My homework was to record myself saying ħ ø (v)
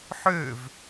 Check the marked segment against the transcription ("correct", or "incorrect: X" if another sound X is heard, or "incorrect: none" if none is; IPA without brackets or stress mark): correct